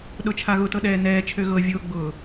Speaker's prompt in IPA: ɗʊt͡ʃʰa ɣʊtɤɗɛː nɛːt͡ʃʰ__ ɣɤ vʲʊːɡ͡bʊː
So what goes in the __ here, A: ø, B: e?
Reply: A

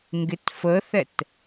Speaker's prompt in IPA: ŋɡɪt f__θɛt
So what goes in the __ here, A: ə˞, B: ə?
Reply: B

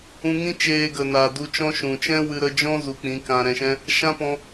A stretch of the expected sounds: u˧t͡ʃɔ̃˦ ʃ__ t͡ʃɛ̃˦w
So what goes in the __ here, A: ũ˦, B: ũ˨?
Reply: B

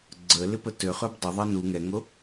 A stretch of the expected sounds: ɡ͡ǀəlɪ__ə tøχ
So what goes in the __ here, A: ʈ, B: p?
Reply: B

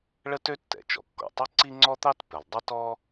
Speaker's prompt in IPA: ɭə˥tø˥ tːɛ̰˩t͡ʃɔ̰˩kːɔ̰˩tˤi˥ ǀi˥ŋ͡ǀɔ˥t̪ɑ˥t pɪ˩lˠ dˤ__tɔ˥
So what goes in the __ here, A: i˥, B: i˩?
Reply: A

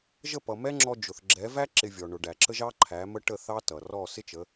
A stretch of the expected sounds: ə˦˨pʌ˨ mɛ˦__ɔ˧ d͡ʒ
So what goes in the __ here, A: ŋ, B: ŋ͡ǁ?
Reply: B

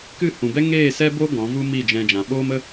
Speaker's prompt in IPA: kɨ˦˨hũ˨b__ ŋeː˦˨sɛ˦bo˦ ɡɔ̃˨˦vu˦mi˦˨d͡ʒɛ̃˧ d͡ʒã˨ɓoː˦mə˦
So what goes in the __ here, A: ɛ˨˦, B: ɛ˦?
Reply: B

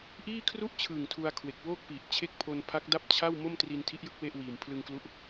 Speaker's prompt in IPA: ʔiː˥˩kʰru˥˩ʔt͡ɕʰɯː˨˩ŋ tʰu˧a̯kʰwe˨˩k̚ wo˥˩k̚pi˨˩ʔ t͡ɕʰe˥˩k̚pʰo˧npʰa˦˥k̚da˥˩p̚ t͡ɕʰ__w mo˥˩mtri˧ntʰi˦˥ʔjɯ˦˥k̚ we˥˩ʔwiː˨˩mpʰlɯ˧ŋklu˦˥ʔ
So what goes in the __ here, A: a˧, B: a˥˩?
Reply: B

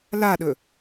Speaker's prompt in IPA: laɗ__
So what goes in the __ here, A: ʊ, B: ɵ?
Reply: B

